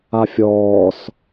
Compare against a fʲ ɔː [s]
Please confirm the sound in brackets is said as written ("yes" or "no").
yes